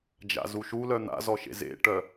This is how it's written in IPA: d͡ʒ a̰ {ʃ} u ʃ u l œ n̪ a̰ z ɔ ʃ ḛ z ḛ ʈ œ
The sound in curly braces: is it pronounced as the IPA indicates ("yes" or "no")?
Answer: no